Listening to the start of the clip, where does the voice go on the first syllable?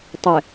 low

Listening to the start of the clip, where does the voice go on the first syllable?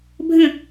falling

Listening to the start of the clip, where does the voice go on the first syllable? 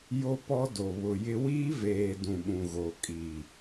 high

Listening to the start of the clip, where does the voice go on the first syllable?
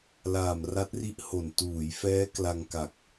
low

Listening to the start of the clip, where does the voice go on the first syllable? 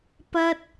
high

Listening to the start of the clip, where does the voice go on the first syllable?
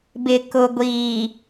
low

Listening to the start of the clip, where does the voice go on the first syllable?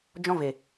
high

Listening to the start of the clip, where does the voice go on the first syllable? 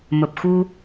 low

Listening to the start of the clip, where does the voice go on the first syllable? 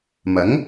rising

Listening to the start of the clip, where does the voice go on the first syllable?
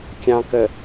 low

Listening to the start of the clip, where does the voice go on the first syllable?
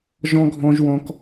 high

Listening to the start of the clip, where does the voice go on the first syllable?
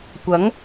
rising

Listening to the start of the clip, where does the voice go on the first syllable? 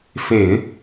low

